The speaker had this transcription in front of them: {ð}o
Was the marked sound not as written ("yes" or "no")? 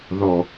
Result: no